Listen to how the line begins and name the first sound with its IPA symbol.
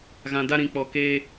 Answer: ɣ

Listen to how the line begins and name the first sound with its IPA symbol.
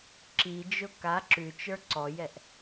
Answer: ǁ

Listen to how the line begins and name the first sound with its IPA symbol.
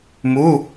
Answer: m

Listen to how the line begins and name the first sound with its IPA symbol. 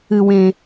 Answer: ɨ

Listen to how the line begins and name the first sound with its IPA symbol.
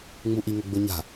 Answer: ŋ͡m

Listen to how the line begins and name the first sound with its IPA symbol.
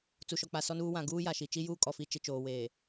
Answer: t͡s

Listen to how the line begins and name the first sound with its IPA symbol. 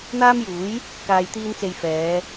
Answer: n̪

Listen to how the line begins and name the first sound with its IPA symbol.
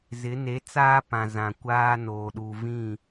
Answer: z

